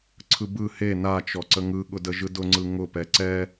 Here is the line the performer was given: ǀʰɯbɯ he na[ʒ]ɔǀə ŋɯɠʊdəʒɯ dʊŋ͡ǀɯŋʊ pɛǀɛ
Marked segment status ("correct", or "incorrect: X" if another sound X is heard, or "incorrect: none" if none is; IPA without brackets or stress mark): incorrect: t͡ʃ